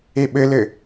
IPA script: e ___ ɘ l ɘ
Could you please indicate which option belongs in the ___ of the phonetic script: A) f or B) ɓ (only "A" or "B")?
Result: B